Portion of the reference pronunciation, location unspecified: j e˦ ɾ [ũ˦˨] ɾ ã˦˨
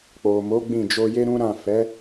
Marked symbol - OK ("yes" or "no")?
no